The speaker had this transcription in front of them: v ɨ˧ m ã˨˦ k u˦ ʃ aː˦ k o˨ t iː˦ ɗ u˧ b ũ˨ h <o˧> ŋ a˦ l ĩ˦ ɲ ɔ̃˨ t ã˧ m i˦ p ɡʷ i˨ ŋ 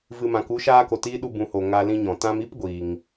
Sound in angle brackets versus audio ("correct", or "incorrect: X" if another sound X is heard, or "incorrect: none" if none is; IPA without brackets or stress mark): incorrect: o˨